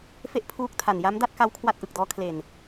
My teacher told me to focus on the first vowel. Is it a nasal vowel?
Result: no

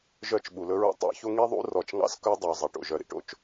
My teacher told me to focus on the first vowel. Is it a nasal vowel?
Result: no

